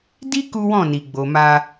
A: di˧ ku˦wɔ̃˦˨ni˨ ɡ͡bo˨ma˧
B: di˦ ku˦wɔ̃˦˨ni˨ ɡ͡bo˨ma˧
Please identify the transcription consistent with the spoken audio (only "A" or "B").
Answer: B